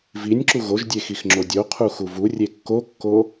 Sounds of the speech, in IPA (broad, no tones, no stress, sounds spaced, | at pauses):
v i nʲ ǁ u ɣ o ʒ dʲ e x i x ŋ͡ǁ o dʲ o qʰ u x u v u rʲ e kː o kː o